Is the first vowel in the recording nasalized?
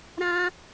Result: yes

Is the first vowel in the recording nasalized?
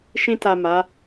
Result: yes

